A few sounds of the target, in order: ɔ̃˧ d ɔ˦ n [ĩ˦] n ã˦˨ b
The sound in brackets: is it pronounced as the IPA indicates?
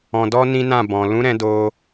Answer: yes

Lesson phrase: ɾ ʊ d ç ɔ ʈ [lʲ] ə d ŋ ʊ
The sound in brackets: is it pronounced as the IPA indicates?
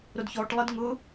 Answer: no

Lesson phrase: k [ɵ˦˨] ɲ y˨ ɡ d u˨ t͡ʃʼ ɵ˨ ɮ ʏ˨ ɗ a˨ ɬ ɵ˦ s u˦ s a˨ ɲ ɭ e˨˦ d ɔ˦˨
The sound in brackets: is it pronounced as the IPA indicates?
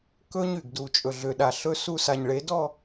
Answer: no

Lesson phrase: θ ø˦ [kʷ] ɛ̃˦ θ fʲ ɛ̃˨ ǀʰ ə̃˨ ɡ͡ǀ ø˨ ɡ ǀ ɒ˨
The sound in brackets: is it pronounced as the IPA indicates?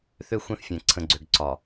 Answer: no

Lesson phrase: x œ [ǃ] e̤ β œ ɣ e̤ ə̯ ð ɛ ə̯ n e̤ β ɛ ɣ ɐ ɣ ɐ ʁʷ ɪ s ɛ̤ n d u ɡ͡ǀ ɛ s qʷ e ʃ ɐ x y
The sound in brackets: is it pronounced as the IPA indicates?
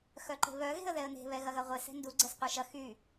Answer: yes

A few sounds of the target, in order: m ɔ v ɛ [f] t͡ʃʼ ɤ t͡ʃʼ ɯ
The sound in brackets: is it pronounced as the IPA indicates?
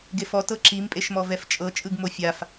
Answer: yes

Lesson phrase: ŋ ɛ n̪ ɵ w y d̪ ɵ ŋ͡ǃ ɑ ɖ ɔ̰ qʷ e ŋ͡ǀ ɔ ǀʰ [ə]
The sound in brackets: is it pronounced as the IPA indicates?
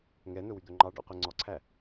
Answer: no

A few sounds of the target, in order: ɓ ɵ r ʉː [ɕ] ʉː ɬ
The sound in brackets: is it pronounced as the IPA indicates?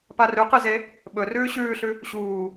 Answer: yes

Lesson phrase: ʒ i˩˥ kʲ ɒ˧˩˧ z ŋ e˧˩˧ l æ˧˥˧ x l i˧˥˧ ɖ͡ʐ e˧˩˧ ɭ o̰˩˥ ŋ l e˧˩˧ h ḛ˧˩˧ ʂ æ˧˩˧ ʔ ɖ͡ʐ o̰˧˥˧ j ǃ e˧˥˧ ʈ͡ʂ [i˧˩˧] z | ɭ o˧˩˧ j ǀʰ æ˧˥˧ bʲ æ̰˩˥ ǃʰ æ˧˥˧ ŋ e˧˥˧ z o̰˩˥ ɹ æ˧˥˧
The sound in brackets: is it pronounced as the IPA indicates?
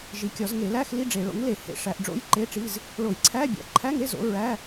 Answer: no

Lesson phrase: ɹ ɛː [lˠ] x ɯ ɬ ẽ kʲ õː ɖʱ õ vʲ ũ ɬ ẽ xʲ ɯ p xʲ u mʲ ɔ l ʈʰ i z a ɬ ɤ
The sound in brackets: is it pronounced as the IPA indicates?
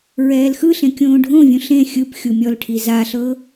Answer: no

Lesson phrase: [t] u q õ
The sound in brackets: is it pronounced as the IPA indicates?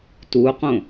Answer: yes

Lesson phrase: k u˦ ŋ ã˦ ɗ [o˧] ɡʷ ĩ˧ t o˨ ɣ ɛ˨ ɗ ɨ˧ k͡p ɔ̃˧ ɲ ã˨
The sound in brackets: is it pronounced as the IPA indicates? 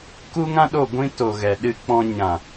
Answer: no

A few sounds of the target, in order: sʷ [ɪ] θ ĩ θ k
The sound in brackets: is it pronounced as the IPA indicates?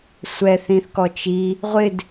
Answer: no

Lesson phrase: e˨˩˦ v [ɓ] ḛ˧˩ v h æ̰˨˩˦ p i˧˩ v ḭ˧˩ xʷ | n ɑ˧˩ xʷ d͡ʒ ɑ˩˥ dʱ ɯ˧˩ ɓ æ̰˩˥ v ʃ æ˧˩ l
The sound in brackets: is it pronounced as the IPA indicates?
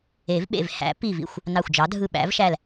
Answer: yes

